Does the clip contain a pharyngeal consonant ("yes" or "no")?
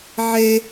yes